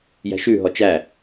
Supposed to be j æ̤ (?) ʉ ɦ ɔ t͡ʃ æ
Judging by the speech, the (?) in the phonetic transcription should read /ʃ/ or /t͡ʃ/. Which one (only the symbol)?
ʃ